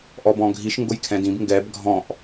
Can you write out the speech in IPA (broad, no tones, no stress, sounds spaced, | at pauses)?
ʔ ɔ b ɔ̃ ɡʱ i ʃ ŋ ɡ ʊ j kʰ ɛ̃ d ĩ b ŋ ɡ ɛ b ɡʱ ɔ̃ ʔ